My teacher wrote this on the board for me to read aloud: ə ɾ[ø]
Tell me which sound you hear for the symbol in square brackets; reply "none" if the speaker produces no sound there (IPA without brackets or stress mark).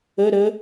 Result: ə